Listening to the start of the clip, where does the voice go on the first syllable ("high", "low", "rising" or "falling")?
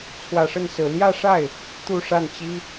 low